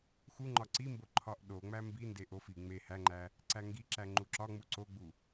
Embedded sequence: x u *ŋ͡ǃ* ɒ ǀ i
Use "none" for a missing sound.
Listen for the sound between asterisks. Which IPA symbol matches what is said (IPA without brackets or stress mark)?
ŋ͡ǃ